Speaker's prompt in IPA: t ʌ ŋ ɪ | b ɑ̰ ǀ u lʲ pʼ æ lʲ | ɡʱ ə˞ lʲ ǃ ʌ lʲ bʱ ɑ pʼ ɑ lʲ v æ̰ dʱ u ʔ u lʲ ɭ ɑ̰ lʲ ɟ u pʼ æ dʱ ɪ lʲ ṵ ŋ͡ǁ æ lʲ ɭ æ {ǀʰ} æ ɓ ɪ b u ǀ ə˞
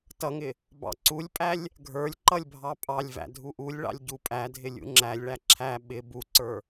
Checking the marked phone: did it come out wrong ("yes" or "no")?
yes